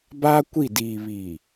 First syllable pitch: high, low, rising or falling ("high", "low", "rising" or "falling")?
high